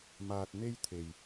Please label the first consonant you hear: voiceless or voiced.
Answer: voiced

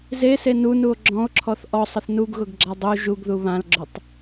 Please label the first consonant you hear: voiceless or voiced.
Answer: voiced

